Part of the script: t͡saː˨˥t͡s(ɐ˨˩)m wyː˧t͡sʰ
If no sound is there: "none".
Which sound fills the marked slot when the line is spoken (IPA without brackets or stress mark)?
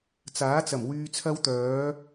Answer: ɐ˨˩